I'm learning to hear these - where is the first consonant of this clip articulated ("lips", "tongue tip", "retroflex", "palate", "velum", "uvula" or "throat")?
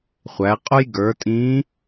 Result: uvula